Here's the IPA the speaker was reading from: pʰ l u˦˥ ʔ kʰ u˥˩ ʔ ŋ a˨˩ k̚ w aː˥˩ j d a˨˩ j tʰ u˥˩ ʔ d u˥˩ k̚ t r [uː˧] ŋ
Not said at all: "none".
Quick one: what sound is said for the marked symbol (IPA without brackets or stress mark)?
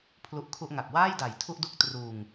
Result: uː˧